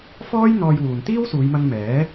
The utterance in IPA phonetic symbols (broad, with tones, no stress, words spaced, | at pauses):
fɔː˥jn̪ɔː˧jwuː˨n t̪iː˥wsuː˨˧jmɐ˧ŋ mɛː˨˥